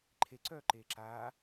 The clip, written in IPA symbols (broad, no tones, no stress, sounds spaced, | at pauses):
ǃʰ e ǀ œː ǃ eː ǁ aː